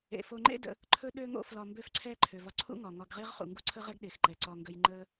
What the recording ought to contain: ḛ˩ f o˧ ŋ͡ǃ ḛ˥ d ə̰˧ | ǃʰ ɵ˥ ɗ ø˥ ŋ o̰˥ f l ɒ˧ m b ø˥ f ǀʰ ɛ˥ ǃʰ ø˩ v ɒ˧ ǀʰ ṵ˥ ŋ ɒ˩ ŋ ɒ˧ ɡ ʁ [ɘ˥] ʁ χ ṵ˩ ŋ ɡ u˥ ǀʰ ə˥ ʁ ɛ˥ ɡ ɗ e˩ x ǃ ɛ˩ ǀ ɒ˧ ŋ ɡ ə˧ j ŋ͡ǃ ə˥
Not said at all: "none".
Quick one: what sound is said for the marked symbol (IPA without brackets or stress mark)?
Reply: e˥